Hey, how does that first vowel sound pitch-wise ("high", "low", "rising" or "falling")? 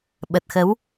low